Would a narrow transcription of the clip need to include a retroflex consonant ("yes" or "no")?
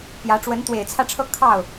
yes